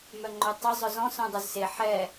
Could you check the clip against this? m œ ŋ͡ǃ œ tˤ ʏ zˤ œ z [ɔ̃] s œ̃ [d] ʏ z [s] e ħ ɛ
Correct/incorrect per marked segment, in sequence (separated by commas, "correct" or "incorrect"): correct, incorrect, correct